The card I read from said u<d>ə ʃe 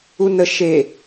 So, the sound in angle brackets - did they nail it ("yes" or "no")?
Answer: no